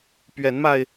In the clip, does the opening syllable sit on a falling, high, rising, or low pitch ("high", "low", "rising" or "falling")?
rising